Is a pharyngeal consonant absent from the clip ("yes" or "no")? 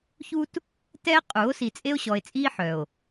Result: no